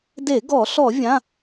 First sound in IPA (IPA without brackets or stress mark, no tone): d